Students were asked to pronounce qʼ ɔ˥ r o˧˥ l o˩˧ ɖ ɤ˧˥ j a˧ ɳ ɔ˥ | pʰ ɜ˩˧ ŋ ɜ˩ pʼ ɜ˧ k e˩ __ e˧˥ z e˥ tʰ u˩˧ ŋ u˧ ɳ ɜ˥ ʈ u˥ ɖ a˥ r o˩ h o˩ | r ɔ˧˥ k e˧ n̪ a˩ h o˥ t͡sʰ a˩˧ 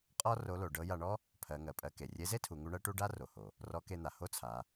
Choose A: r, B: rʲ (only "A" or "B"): B